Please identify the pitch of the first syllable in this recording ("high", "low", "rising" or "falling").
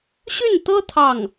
falling